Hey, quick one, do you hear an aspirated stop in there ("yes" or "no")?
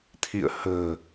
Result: yes